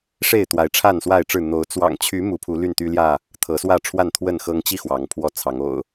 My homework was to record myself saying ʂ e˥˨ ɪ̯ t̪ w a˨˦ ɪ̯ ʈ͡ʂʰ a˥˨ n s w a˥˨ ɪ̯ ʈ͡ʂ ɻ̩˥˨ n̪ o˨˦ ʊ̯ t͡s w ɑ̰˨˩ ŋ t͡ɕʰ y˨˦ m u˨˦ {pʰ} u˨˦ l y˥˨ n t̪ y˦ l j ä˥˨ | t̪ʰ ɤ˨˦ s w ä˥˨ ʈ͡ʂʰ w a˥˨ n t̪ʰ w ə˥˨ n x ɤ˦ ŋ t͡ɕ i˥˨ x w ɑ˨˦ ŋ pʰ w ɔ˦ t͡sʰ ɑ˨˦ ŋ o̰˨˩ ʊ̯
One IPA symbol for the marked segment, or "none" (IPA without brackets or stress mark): pʰ